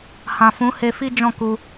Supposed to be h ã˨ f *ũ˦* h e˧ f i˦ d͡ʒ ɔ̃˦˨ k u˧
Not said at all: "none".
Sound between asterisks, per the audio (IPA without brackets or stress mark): ũ˨˦